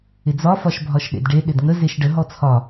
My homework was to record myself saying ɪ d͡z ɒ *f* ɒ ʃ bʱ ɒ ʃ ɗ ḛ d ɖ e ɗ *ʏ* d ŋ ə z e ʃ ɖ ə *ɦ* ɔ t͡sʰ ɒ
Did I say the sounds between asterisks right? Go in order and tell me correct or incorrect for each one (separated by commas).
correct, incorrect, correct